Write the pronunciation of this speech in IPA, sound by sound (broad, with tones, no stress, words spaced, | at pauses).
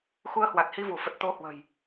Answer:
xu˧ə̯hwa˨˩t̚hi˧vu˧˩ fə˨˩t̚t̪o˧hwə̤˨˩j